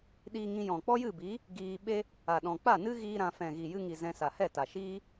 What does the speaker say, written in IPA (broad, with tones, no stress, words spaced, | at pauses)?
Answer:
ɗiː˧ŋĩ˧jɔ̃˨ k͡pɔ˦jɨ˦˨bi˨˦ | ɡiː˧ɓe˦ | a˨ɗɔ̃˨k͡pa˦˨nɨ˦ ɣiː˦ɾã˧ fɛ̃˨ɣi˨jɨ˧ŋi˨ zɛ̃˧sa˨ hɛ˦˨ta˨ʃiː˦